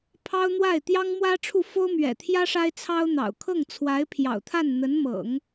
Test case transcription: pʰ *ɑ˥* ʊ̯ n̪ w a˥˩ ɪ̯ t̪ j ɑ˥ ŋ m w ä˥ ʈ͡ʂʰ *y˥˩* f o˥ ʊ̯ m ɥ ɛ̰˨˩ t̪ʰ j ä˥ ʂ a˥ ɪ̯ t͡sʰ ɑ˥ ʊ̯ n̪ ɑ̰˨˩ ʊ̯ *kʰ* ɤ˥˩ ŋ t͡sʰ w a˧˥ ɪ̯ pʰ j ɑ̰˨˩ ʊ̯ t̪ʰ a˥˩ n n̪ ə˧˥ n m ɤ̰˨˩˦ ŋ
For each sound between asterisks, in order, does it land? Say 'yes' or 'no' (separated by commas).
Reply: yes, no, yes